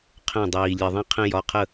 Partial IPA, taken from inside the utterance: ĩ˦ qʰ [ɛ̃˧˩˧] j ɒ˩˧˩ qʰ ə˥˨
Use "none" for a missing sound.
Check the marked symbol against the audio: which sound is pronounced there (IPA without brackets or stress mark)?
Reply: ɛ̃˦